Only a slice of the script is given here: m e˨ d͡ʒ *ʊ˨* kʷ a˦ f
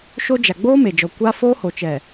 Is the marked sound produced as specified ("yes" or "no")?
no